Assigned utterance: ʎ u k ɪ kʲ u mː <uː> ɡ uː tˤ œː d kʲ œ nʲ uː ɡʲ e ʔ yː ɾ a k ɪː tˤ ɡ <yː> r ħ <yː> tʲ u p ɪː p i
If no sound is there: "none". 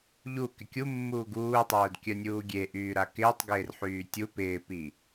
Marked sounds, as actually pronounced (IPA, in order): uː, ɪː, yː

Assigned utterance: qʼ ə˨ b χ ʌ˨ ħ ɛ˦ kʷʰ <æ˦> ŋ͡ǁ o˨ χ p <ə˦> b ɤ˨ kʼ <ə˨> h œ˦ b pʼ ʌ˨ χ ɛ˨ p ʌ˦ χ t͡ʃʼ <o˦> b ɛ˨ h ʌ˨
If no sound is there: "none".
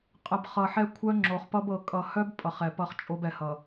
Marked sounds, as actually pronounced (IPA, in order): œ˦, ʌ˦, ʌ˨, o˦

